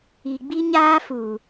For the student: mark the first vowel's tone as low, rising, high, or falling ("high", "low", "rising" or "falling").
low